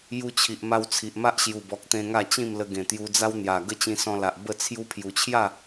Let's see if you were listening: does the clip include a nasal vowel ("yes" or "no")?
yes